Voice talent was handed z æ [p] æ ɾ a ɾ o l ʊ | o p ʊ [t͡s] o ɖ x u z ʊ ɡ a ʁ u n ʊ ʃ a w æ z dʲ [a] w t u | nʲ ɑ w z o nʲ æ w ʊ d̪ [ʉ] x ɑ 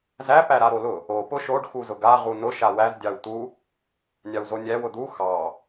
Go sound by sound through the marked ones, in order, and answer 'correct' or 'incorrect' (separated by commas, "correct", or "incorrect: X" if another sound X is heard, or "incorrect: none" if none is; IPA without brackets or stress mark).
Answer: correct, incorrect: ʃ, incorrect: ɑ, incorrect: u